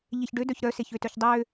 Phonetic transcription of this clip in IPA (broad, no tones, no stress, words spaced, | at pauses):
ʎeçɖødœç ɾœseçøtœç dˤø